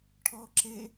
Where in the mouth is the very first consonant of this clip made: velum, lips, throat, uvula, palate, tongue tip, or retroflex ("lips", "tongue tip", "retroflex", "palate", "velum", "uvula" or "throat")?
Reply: retroflex